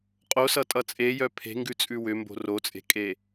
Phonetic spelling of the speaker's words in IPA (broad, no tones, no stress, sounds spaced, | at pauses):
qʼ o s ʌ tʼ ʌ t͡sʼ e j œ pʰ e̤ ŋ ɡ ʉ t͡sʼ ʉ w ʏ m b o̤ r o t͡sʼ e̤ kʼ e